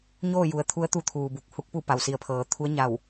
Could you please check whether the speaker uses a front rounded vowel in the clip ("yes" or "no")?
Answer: no